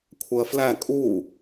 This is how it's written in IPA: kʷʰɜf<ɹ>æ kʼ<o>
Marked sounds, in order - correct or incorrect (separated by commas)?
incorrect, incorrect